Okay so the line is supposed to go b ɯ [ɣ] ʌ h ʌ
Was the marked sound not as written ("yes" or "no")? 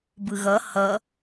no